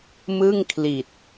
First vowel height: high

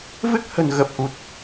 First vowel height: high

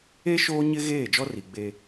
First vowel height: mid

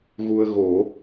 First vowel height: high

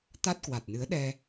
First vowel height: low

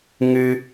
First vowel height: high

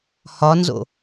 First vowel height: low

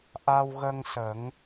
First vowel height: low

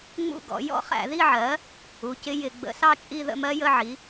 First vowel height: high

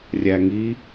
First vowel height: low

